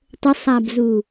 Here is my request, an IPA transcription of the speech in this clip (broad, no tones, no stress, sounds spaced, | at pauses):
tˤ ə sˤ a b z u